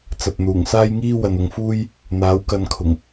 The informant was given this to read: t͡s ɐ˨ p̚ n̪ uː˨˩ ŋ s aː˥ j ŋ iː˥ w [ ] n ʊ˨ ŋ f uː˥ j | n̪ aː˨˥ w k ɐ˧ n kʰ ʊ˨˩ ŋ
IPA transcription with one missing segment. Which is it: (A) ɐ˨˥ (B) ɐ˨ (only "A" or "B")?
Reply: B